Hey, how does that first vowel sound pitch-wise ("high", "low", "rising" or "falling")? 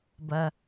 high